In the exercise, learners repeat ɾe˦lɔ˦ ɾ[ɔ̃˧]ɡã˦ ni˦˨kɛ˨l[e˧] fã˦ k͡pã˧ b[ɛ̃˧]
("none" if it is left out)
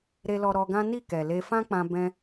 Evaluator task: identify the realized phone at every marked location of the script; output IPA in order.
ɔ˧, e˧, ɛ̃˧

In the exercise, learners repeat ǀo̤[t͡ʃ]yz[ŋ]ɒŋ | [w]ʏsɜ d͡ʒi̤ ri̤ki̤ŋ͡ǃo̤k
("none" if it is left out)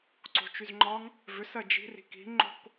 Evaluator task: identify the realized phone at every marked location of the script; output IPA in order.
t͡ʃ, ŋ͡ǃ, v

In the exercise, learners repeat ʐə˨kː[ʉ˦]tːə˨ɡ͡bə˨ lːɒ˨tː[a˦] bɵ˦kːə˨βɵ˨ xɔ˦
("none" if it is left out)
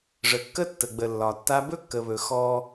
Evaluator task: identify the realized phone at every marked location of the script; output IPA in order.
ə˦, a˦

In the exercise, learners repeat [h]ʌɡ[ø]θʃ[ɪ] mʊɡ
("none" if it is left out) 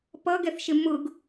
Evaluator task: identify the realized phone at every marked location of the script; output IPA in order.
p, ɛ, ɪ

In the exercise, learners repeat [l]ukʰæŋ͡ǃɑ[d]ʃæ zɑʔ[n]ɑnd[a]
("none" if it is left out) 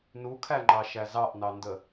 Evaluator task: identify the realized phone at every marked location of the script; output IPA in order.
n, none, n, ə

